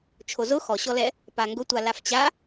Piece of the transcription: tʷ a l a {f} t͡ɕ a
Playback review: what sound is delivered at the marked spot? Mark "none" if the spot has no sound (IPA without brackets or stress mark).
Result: f